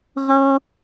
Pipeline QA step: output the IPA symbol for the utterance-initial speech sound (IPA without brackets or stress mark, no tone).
ʁ